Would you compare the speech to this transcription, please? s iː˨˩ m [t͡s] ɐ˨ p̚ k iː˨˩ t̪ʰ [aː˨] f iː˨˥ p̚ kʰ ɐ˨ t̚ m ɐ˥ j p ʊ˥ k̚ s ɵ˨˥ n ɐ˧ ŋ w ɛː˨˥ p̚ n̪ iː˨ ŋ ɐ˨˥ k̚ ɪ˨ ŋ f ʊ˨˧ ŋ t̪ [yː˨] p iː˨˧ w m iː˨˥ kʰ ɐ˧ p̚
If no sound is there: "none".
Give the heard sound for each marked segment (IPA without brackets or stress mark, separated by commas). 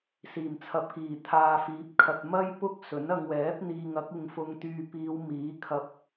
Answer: t͡sʰ, aː˨, yː˨